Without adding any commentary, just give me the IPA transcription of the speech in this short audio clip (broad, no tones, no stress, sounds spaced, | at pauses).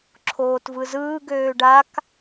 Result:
ǁʰ oː t v ɯ z ɯː ɡ øː ɖ a k